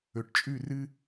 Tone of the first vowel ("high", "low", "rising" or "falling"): low